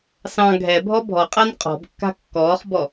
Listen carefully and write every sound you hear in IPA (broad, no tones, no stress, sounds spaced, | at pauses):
s ɑ̃ ɡʱ ɛ bʱ ɔ bʱ ɔ qʼ a n qʼ ɔ̤ b kː a̤ kː ɔː χ b ɔ